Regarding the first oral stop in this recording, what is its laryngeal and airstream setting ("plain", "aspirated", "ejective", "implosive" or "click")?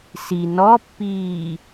plain